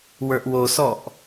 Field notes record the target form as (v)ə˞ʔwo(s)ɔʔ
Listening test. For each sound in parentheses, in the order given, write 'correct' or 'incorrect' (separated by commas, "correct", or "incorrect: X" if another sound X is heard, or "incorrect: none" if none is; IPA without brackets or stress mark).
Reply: incorrect: w, correct